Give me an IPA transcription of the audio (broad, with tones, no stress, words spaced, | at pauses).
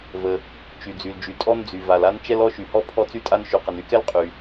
və˩ | t͡ʃy˩d͡zy˩ld͡ʒy˩ tʼɔ˥nd͡zy˩va˩la˥n t͡ʃɛ˥lɔ˥ʃy˩hɔ˥ pʰɔ˥t͡sy˥tʼa˥n ʃy˩qə˩n y˥kɛ˥l qʼy˩